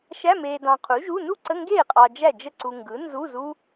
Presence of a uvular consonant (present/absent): present